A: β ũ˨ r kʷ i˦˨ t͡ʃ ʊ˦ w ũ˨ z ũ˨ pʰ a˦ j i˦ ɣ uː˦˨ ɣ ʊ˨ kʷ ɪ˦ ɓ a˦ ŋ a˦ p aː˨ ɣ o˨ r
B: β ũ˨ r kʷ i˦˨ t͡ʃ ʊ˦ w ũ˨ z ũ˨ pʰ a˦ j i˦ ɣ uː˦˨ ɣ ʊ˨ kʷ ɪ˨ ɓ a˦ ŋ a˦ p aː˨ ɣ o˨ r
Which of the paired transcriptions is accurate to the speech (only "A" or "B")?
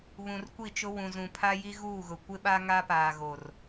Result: A